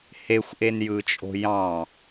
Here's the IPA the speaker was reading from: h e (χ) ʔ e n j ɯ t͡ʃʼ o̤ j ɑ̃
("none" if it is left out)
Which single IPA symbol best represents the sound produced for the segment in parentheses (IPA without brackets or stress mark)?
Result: xʷ